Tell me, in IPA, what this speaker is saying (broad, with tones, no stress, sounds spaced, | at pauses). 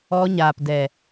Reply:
ɔ˧ ɲ aː˨ p d ɛ˨